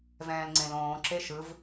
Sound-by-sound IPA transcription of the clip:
v ɛ̃ː l ŋ͡ǀ ẽ l õː ǁ e ʃ ɯ v

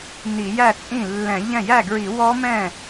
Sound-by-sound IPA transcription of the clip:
n i˧˩˧ j æ˥˩ t͡sʼ ĩ˥˩ lː ɛ̃˧˩˧ ʎ ɛ̃˥˩ j æ˥˩ ɡ ɹ i˧˩˧ w ɔ˦˥ m ɛ̃˥˩

